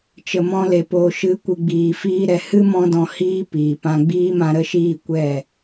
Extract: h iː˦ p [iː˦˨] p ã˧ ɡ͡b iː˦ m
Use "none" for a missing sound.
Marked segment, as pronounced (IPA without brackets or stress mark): iː˨